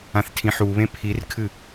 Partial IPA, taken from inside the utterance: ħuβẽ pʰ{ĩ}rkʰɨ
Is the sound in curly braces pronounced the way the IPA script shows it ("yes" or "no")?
no